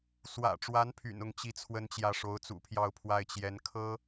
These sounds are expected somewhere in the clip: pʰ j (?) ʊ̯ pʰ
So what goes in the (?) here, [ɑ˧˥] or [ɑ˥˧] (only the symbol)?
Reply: ɑ˥˧